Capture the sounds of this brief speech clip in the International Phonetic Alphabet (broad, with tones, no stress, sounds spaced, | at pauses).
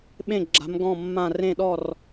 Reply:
ɓ ẽ˥˩ ɡ͡ǁ a̤˨˥ m ɡ ɔ̃˥˩ mː ã˥˩ r ẽ˥˩ ɗ ɔ˥˩ r